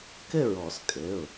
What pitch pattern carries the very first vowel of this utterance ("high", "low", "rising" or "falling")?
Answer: falling